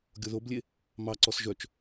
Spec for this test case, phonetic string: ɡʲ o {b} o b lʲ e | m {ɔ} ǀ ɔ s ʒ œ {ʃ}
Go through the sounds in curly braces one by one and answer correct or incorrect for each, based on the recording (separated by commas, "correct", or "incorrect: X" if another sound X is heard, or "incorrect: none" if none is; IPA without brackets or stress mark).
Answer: incorrect: ð, incorrect: ɑ, incorrect: t͡ʃ